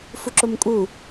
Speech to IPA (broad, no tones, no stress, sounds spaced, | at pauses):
f u ǁ o m kʼ u